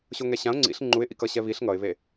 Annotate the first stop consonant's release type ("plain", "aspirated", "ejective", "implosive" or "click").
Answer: click